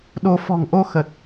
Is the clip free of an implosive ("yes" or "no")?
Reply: no